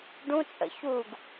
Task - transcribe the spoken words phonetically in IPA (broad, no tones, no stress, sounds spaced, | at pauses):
ɖ ũ t͡sʼ ə̰ ç u ɡ